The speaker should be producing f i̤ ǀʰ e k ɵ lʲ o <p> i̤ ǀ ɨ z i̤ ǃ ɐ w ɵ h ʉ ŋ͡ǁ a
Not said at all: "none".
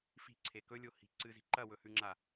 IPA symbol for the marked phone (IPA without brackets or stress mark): h